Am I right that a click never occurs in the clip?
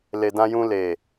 yes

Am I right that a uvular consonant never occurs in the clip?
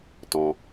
yes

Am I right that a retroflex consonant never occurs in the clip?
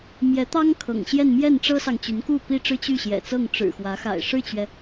no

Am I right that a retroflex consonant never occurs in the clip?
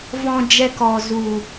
yes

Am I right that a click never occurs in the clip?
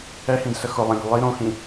yes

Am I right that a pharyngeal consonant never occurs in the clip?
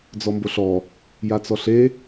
yes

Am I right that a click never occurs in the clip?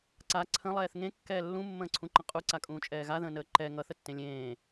no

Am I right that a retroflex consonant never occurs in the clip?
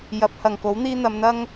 yes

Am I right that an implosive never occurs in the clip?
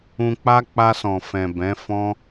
yes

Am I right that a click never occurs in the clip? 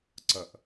no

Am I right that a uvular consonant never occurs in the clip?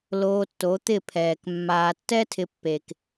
yes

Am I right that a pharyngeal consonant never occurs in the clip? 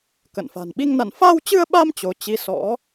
yes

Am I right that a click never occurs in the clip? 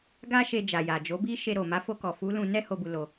yes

